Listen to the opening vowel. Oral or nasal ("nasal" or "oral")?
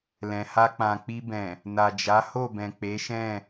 nasal